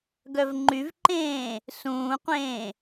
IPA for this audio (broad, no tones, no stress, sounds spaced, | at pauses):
ɡ œ v ŋ͡ǃ y v ǃ ẽː | s ũː qʷ ẽː